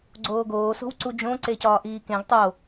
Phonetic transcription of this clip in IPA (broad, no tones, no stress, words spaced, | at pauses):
ɡ͡ǀoːɡoː so̤wǀud͡ʒõ ǀecɒːʔiːkẽɡ tˤo